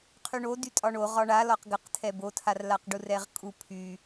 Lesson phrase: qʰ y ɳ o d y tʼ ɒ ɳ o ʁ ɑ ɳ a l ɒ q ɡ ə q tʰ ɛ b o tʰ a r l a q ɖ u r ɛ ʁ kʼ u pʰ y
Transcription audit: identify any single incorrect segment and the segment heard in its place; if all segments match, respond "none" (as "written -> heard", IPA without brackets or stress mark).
ɑ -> ɒ